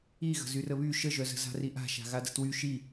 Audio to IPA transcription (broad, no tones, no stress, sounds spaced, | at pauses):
i ɣ ə̤ z y r ə β y ʃ ə ʒ œ z ə̤ z a̤ r i ʔ a̤ ʃ a̤ ɣ a d ə̤ t w y ʃ i